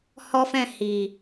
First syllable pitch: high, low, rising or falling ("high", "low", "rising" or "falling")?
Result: high